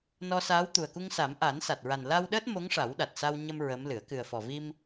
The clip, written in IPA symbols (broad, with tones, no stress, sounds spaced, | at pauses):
n ɔ˧ s aː˧˥ w t̪ u˨˩ ə̯ k u˧ ŋ s a˨˩˦ m ʔ a˨˩˦ n s a˨˩ t̚ ɹ a˨˩ n l a˧ w ɗ əː˦˥ t̚ m o˧˥ ŋ ʂ a˨˩˦ w ɗ a˨˩ t̚ s a˧ w ɲ ə˧ m ɹ ə˧˥ m l ɨ˨˩˦ ə̯ k ɨ˨˩ ə̯ f ɔ˨˩ v i˧ m